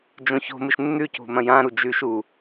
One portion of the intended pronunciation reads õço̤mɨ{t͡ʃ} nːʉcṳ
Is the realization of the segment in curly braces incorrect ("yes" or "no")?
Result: yes